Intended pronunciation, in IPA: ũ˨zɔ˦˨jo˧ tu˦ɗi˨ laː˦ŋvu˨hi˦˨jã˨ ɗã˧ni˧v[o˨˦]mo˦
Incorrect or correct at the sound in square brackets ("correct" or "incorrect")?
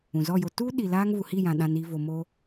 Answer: incorrect